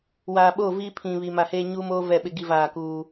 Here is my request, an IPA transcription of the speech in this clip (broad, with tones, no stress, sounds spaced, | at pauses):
w aː˨ ɓ oː˦˨ v i˦ pʰ ĩ˨ β i˨ m a˨ h eː˦ ɲ uː˦ m oː˦ v ɛ˦˨ ɓ ɪ˦ ɡ i˦ v aː˦˨ k uː˦